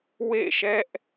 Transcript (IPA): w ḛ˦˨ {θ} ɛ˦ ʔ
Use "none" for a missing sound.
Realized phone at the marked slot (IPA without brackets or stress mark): ʃ